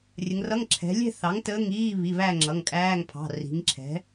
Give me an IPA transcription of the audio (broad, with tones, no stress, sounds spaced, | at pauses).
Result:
rʲ ə˩˧ ŋ r ʌ˧˥˧ ŋ ǁʰ ɛ̤˩˧ lʲ ɛ̤˥˧ θ ɑ˩˥ ŋ t əː˧˥˧ ŋ iː˧˥˧ β i˩˧˩ β æ˥˧ ŋ͡ǁ ʌ˩˧˩ ŋ kʼ æː˧˥˧ ŋ pʰ ɑ̤˩˧˩ r i̤˩˧ ŋ ǁʰ ɛ̤˩˥